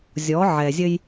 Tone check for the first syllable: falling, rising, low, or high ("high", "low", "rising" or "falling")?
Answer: rising